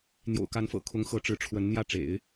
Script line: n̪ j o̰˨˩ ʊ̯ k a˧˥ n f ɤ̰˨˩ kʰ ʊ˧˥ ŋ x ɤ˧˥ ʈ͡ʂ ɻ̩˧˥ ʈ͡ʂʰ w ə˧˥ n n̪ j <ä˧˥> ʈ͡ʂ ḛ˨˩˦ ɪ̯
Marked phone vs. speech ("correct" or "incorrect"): incorrect